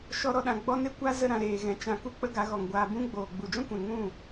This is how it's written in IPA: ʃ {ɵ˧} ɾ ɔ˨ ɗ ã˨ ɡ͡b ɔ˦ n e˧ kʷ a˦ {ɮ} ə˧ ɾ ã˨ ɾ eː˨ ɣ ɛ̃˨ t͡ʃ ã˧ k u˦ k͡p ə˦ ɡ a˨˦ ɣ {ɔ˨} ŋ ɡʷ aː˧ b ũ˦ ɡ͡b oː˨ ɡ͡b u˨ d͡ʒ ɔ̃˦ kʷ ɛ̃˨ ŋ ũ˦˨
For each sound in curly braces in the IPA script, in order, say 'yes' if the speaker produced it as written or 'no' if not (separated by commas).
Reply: no, no, yes